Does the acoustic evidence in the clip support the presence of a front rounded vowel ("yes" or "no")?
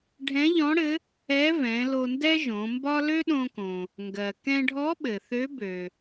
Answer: yes